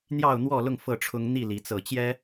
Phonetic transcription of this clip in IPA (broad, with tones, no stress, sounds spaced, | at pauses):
n̪ j ɑ˥˨ ʊ̯ n̪ w ɔ˥˨ l ʊ˥˨ ŋ f ɤ˥˨ ʈ͡ʂʰ ʊ˦ ŋ n̪ i˥˨ l i˨˦ t͡s ɤ˥˨ t͡ɕ j ɛ˦